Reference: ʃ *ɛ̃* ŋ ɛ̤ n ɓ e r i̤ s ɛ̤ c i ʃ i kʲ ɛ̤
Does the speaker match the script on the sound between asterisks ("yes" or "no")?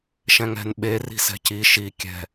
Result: yes